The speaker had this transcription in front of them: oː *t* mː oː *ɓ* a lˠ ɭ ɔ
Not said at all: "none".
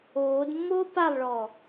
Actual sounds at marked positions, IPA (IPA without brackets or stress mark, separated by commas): d, p